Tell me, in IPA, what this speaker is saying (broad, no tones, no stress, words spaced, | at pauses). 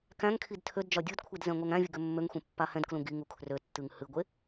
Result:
kæ̃ŋkʰid tʰødd͡ʒɒ dʲudkʷʰid zɛ̃ŋʷɛŋæ̃vʲɨ ɡømːøŋxʷẽ pːahɛ̃dklũ ɡiŋ ukʰrøtːɨŋ hɨɡʷe